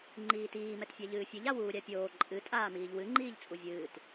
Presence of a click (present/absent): present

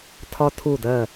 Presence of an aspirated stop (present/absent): present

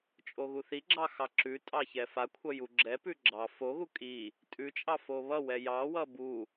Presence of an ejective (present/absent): present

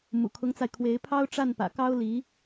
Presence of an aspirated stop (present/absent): present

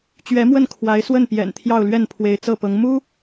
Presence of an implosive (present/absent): absent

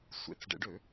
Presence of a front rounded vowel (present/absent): present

